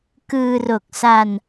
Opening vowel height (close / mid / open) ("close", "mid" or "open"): close